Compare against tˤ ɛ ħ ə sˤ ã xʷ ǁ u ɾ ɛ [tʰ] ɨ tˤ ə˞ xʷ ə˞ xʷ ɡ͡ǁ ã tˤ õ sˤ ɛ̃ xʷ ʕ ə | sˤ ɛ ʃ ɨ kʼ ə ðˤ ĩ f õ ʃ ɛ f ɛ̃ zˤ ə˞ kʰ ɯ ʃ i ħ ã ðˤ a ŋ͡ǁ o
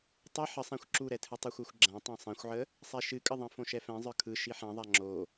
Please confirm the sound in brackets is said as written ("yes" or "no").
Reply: yes